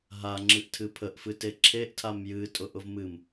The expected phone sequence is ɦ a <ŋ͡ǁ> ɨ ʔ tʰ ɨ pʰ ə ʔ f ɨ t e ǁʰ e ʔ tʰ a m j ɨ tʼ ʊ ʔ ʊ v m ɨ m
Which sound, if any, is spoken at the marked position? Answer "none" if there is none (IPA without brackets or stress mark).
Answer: ŋ͡ǁ